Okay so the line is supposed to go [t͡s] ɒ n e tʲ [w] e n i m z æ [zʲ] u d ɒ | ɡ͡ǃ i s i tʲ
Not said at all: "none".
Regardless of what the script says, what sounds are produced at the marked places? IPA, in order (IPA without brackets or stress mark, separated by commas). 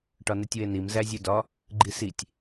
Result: ʈ, w, zʲ